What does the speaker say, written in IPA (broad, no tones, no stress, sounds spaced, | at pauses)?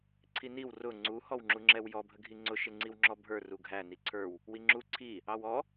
ǀʰ i n i w r ʊ ŋ͡ǀ u h ɔ w ŋ͡ǁ u ŋ͡ǁ ɛ w j ɔ bʱ ə ɡʱ i ŋ͡ǀ ʊ ʃ ɪ ŋ͡ǀ i w ŋ͡ǁ ɔ bʱ ə˞ r u ɡʱ æ n i ǀʰ ə˞ w | w i ŋ͡ǁ u ǀʰ i | ɑ w ɔ